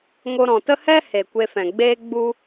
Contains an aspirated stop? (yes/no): no